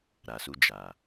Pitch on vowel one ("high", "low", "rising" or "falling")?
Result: low